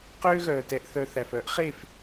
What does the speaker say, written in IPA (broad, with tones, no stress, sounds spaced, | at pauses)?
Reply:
q øː˦ ɣ œː˨ t ɛ˨ ʔ θ œ˨ θ æ˨ f œ˦ ʔ χ e˦˨ f